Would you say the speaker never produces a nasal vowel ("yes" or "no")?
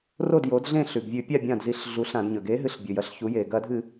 no